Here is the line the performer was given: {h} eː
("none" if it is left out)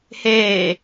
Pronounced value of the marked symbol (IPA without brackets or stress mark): h